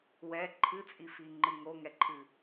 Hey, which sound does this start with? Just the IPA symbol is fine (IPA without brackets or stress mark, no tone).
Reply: w